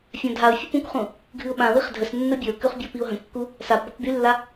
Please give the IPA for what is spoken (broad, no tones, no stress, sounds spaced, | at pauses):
fʲ ã dʱ a ʊ̯ fʲ ə p ũ k χ ũ | ɡʱ ɨ ʊ̯ ɓ ã w i χ dʱ ə s nː ə bʲ ə ʊ̯ k ʉ χ bʲ ɔ p i ʊ̯ ɦ ə̃ kː u | s a p b ɔ k b y lː a